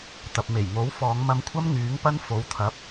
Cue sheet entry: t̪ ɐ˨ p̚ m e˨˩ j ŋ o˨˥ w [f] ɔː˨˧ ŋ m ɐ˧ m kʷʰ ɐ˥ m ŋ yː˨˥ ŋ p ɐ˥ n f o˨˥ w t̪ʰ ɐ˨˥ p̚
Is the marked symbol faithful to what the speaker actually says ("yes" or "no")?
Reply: yes